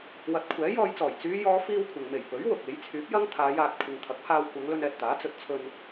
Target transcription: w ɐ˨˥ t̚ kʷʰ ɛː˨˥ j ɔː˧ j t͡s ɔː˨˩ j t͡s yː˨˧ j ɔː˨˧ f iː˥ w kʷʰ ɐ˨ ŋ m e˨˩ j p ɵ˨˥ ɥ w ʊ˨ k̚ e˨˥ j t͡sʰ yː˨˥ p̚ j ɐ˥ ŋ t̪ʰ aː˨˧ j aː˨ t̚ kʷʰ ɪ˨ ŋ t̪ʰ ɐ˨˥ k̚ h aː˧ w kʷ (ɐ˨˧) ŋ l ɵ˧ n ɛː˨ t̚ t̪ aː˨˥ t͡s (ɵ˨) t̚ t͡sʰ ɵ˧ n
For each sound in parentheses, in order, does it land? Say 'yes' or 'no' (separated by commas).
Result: yes, yes